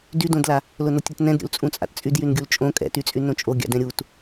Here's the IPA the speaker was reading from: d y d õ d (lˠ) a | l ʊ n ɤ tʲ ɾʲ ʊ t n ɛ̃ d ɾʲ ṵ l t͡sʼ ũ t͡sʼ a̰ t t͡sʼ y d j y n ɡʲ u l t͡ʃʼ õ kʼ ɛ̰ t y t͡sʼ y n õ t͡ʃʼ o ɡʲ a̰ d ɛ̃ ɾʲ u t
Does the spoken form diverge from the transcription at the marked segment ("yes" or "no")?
yes